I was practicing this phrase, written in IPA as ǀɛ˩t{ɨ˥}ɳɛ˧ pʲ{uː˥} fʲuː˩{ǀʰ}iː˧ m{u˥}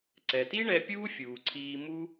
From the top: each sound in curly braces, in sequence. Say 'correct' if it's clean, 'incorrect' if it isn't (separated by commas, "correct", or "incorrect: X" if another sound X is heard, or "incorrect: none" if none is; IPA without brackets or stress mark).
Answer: incorrect: i˥, correct, correct, correct